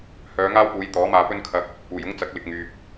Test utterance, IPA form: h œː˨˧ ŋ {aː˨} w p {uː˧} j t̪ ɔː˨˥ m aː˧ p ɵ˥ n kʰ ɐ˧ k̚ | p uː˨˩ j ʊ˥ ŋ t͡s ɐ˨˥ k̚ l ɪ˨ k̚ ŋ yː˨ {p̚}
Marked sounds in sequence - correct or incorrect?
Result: incorrect, incorrect, correct

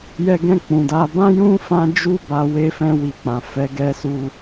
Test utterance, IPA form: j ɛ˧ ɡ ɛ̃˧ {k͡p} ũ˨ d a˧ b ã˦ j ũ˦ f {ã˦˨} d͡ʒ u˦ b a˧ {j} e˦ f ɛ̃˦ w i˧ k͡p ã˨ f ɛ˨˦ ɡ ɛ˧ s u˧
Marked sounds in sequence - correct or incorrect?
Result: correct, incorrect, incorrect

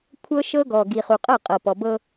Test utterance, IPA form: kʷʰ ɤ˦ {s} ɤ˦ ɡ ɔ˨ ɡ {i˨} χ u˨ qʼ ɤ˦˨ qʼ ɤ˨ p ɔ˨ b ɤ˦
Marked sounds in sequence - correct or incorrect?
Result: incorrect, correct

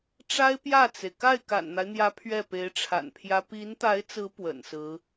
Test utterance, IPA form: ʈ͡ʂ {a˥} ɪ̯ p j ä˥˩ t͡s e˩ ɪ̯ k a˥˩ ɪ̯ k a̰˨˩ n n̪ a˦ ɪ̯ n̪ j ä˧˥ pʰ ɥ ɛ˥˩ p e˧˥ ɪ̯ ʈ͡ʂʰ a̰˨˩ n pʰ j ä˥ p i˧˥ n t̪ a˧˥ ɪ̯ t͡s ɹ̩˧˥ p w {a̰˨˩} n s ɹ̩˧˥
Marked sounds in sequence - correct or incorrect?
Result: correct, incorrect

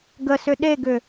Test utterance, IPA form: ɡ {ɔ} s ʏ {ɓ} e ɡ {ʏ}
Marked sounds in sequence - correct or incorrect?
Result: incorrect, incorrect, correct

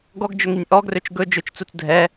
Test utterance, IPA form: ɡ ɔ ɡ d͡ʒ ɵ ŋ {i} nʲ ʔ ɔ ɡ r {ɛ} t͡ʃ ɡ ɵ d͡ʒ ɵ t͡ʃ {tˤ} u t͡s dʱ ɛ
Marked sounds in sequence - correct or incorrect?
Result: correct, incorrect, incorrect

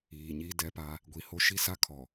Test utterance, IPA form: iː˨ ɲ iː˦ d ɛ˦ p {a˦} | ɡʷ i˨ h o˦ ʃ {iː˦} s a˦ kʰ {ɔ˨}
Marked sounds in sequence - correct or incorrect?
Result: correct, incorrect, correct

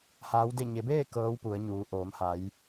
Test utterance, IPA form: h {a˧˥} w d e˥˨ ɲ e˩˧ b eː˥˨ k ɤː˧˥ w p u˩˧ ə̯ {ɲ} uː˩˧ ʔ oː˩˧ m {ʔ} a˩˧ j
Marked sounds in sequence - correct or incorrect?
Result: incorrect, correct, incorrect

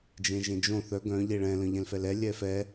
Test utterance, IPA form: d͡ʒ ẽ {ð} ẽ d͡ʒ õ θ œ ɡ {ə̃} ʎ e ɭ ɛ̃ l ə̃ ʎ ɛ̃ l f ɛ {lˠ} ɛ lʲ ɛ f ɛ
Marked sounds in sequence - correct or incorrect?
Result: incorrect, incorrect, incorrect

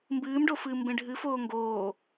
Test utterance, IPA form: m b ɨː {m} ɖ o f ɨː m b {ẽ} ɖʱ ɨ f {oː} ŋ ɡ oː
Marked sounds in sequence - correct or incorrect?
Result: correct, correct, correct

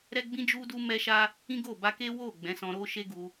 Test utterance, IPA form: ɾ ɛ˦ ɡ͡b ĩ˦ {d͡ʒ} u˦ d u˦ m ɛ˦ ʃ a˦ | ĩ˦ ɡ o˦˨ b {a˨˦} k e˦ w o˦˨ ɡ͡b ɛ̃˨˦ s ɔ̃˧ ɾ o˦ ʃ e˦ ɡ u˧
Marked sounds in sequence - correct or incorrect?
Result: correct, incorrect

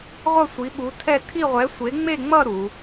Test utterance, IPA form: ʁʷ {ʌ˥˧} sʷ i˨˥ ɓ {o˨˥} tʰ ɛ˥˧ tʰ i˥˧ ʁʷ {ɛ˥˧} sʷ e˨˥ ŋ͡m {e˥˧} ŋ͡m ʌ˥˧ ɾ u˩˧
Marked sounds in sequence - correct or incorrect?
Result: correct, incorrect, incorrect, correct

